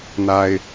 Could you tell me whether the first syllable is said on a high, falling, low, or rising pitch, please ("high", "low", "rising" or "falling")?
low